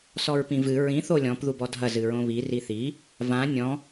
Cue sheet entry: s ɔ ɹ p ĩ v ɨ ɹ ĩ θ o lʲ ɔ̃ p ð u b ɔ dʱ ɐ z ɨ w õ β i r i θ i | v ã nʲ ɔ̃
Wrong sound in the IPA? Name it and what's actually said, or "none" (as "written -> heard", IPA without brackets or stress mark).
w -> ɹ